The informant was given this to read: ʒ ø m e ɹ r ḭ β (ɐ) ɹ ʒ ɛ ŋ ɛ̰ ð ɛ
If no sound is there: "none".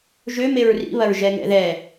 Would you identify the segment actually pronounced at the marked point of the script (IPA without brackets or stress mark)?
ɐ